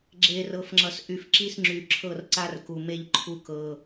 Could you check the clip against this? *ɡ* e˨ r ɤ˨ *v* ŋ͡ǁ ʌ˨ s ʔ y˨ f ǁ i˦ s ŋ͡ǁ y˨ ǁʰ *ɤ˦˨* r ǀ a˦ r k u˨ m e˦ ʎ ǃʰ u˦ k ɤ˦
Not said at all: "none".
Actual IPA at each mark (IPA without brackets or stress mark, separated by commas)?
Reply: ɡ͡ǁ, f, ɤ˦˨